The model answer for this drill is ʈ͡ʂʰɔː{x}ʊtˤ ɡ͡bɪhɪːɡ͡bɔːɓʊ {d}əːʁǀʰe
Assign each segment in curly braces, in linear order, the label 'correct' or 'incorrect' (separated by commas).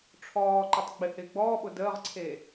incorrect, correct